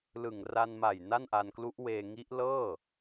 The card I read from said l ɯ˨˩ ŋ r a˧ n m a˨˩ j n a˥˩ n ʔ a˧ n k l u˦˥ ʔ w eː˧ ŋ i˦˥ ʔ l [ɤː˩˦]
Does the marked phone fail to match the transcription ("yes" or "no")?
yes